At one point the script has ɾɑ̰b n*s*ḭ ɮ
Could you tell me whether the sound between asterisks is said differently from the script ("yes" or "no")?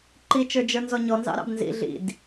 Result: yes